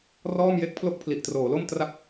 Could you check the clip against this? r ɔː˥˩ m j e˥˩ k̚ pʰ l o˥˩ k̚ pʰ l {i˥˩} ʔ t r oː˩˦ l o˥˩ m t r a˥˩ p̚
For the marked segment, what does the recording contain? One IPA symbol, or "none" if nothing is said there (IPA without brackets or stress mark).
i˨˩